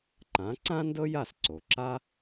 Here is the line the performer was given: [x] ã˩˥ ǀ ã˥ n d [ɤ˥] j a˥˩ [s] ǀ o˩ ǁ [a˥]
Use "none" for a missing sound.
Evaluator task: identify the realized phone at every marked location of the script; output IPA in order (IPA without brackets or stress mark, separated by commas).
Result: ǃ, ɤ˥, s, a˥